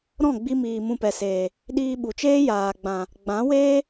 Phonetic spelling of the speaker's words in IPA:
ɾ ɔ̃˦˨ ɡ͡b i˧ m iː˨ m ũ˧ p ɛ˨ s eː˨ | ɗ iː˧ ɓ u˨ t͡ʃ eː˦ j aː˨ ɡ͡b ã˨ | ɡ͡b ã˨˦ w eː˦

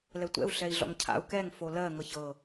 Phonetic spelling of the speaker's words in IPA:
l ɛ tʷ ɛ̰ u̯ ɬ ɛ i̯ ɮ ɔ̰ ŋ cʰ a̰ u̯ k ɛ ŋ f o l ɜ ŋ ɤ ç ɤ

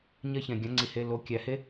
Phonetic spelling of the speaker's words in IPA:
ɲ ɜ˦ ç ɛ̃˩ ɡʲ ã˩˥ ŋ͡ǀ i˩ h e˩˧˩ l o˩˧˩ kʲ æ˩ h e˦

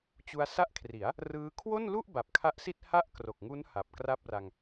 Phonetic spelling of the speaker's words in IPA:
t͡ɕ u˧ a̯ s a˦˥ ʔ kʰ r i˩˦ a̯ | r ɯː˦˥ kʰ w o˥˩ n l u˥˩ ʔ b a˨˩ p̚ kʰ a˦˥ ʔ s i˥˩ t̚ h a˥˩ ʔ k r o˨˩ k̚ ŋ u˦˥ n h a˨˩ p̚ k r a˥˩ p̚ r a˧ ŋ

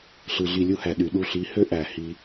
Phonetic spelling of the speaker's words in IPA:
ɬ ɯ˨ ɮ i˧ lʲ u˦ h æ˨ ɗ y˨ ɗ u˧ ɬ i˨˦ h ø˦ ʔ æ˨ h i˧

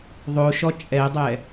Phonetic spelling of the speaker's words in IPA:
ðˤ o ʃ ɔ t͡ʃʼ ɛ dˤ ɛ

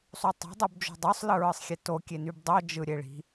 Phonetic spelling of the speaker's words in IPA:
sˤ u tˤ e̤ dˤ u b d͡ʒ o̤ dˤ o sˤ l ɯ ɹ ɯ sˤ xʲ e t o kʲ e n y b dˤ o d͡ʒ ɯ ɾʲ e ɭ i̤

